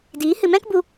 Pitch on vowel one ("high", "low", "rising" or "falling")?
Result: rising